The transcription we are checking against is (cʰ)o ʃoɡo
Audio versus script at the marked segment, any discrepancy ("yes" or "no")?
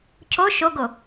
no